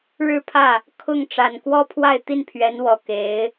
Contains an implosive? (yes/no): no